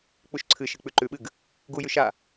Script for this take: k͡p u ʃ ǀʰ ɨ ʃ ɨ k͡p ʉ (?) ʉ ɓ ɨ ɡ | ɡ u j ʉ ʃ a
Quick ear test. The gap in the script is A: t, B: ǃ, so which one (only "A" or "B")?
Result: B